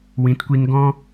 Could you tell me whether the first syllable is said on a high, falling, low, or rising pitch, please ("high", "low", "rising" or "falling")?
rising